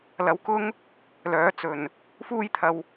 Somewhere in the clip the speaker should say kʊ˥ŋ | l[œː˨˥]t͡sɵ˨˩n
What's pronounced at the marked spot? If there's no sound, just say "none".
œː˨˥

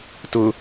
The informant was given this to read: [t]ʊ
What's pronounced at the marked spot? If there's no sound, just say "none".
t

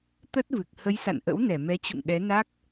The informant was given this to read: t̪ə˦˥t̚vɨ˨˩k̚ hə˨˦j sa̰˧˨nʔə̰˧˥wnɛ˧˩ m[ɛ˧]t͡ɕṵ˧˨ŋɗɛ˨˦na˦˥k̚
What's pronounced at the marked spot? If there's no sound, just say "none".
ɛ˨˦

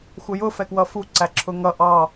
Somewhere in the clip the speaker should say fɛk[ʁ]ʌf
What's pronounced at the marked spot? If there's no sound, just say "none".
w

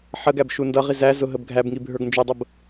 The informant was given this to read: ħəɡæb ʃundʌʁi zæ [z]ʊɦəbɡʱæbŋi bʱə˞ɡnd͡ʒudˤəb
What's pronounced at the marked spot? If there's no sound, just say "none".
z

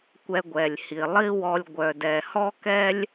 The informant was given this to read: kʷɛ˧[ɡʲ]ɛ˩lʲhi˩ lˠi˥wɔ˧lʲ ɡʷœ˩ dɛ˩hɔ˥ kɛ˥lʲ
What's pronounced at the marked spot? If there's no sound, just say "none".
ɡʷ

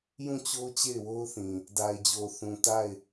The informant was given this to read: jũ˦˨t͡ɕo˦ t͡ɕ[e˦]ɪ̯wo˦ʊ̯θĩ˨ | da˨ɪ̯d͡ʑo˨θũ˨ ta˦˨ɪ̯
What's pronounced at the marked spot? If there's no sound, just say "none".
e˦˨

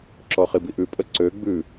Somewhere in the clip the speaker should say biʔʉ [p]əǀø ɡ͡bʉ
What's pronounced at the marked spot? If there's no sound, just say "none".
pʼ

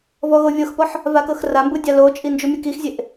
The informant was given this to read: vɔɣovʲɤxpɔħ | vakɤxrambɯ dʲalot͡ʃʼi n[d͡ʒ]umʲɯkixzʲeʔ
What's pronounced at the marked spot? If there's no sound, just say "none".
d͡ʒ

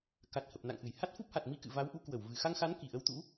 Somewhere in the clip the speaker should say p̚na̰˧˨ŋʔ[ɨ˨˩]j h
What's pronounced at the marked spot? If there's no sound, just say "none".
ɨ˧˩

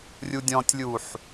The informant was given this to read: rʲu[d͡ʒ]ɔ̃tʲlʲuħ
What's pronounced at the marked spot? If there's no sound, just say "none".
dʲ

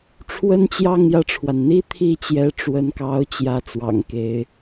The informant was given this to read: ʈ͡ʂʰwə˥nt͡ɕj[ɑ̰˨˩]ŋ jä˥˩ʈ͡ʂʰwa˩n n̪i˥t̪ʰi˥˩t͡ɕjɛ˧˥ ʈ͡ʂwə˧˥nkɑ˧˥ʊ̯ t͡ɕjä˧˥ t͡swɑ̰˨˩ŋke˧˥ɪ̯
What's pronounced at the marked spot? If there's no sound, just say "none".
ɑ˥˧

